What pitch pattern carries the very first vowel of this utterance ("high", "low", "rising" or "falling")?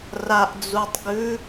low